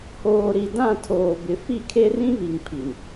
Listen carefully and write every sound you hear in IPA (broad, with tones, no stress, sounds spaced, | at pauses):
h oː˨ ɾ i˨ d ã˦˨ tʰ oː˨ b ɪ˨ f i˦˨ kʰ e˦ r ĩ˦ β i˨ ŋ pʰ i˨ n